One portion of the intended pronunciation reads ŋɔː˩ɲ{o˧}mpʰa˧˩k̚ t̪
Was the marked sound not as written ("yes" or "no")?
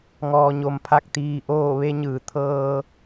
yes